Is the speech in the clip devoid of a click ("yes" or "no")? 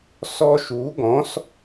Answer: yes